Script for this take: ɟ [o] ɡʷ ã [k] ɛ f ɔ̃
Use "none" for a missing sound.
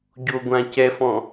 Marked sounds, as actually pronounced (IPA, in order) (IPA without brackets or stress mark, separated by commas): o, c